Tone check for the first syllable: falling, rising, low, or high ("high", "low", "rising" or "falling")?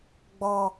low